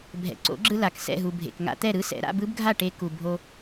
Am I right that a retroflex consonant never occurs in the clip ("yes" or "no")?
no